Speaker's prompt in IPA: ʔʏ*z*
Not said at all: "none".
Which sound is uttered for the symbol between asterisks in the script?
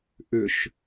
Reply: ʃ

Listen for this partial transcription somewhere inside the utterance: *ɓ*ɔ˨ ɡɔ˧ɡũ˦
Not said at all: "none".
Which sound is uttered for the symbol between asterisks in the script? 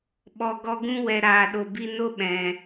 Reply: ɓ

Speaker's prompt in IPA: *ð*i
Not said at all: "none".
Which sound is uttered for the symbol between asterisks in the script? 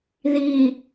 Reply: ð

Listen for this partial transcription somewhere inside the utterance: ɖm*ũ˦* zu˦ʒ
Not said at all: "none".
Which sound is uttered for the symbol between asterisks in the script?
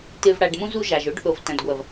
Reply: ũ˦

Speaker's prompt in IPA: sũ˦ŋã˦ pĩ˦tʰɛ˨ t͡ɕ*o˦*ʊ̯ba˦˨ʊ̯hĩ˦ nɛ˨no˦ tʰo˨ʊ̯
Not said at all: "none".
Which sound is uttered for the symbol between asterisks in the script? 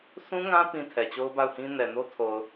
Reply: o˦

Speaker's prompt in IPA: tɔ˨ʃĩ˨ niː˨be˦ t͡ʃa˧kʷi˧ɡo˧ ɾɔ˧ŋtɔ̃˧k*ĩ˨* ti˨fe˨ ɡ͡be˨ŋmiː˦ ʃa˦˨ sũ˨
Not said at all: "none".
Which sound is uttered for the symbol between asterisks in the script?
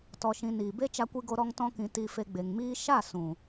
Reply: ĩ˨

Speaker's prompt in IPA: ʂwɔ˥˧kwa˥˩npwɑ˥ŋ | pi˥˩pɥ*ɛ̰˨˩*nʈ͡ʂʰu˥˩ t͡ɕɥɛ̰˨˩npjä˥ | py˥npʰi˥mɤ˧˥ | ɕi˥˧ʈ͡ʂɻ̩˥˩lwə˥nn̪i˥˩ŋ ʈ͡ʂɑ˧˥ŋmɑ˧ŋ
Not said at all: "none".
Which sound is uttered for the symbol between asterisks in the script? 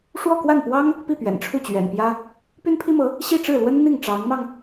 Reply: ɛ̰˨˩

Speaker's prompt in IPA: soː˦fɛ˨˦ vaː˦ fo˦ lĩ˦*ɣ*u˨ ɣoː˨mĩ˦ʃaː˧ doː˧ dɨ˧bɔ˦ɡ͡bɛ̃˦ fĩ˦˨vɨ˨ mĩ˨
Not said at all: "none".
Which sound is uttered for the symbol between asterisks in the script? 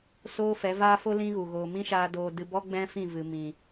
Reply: ɣ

